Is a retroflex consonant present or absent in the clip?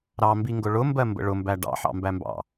present